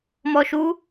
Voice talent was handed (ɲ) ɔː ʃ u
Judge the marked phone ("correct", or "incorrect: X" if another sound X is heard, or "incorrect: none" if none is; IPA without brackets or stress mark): incorrect: m